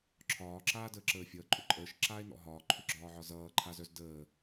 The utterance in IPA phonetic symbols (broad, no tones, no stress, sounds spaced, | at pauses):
ǁʰ ɒː ǁ aː d əː ǁ əː fʲ ʌː ǃʼ ʏ ǃʼ əː ʃ ǁ aː e̯ n ɔ̰ ɦ ɒː ǃʰ ʏ ɡ͡ǁ ɒː ʕ ɒ z ʌː ǃʰ a z œ z d əː